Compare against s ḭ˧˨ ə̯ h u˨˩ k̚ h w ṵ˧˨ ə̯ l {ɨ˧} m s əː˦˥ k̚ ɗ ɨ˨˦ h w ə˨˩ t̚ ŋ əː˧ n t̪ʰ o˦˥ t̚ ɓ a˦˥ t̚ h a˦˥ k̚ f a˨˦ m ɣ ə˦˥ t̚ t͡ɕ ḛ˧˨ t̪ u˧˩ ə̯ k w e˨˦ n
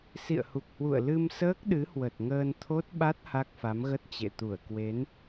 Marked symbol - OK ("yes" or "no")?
yes